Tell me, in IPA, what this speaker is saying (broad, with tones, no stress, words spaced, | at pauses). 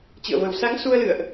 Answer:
t͡ɕɨ̰˧˨ə̯və˨˩w sa˨˦ŋ su˧ə̯lɨ̰˧˨ə̯ʔ